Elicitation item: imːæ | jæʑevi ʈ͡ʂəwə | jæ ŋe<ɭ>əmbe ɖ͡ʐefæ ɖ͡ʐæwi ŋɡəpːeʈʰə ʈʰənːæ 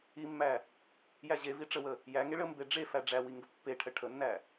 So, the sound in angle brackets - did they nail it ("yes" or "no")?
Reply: yes